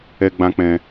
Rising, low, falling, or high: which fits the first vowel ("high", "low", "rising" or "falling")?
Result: high